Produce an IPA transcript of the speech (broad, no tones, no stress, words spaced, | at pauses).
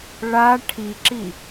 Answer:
ɭa ʈʰiǁi